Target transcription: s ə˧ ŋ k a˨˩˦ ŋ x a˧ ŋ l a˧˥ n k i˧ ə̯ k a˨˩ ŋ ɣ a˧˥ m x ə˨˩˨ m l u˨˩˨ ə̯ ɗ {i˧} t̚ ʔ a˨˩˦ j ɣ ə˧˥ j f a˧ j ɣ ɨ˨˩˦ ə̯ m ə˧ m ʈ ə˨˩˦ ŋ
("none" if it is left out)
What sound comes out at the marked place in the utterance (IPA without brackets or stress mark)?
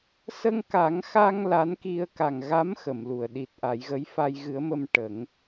i˨˩